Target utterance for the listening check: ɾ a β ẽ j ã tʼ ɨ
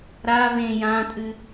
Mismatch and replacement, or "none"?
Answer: none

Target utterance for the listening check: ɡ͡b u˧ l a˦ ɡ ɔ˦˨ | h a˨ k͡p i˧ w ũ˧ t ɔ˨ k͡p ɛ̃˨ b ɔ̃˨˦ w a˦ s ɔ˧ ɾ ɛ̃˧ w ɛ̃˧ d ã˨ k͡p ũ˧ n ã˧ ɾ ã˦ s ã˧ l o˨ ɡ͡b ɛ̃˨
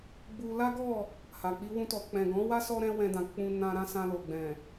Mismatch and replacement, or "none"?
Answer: b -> ɡ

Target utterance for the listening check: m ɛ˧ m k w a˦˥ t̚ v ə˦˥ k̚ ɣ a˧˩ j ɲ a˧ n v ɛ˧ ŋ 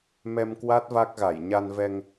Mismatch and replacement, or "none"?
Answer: ə˦˥ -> a˦˥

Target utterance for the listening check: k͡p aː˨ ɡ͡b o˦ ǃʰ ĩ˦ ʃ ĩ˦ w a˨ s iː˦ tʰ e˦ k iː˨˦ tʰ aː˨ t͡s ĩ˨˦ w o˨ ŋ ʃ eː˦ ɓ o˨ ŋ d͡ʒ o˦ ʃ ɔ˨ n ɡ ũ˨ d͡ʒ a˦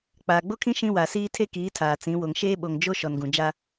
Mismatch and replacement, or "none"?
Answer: ǃʰ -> kʰ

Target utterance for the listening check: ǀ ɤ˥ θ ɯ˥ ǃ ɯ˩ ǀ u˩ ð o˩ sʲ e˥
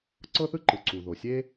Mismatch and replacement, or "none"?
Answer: none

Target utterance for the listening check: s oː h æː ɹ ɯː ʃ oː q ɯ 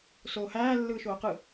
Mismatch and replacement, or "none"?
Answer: ɹ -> lː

